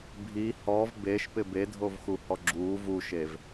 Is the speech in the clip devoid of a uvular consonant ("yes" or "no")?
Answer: yes